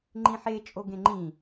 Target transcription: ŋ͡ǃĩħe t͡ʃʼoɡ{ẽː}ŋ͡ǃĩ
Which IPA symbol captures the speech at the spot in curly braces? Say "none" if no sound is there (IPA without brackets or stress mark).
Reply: ẽ